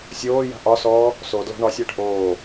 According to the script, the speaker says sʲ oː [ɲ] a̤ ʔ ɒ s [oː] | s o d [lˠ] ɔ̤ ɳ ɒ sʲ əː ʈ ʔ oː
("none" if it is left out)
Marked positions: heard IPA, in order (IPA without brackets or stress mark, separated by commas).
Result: j, ɔː, l